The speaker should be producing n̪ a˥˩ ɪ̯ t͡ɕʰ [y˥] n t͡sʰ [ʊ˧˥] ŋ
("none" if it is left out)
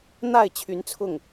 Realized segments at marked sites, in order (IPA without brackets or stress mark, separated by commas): y˧˥, ʊ˥˩